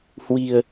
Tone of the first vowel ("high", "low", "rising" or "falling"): low